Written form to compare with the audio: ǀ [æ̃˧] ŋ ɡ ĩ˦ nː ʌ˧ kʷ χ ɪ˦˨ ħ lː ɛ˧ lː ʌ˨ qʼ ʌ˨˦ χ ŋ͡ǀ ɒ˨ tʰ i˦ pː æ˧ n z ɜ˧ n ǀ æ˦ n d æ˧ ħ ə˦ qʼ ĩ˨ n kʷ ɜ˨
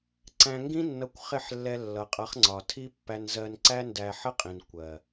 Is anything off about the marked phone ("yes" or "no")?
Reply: no